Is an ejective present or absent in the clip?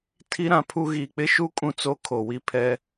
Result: present